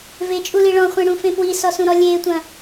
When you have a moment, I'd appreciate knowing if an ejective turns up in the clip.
yes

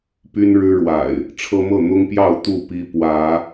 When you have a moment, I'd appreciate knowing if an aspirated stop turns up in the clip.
yes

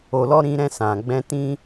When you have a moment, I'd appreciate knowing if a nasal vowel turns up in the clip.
yes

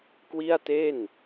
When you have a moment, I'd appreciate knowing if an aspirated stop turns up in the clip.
no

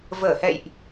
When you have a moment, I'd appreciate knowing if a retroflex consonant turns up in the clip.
no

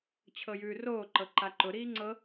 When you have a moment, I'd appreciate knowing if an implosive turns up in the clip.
no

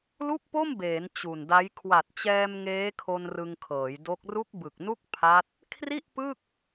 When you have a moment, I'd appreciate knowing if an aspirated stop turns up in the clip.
yes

